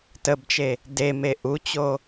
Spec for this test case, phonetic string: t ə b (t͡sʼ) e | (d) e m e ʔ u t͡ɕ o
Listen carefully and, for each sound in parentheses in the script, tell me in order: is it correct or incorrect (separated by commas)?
incorrect, correct